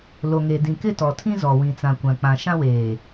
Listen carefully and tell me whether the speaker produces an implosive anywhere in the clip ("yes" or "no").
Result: no